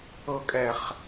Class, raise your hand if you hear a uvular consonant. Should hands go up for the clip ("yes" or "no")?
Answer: yes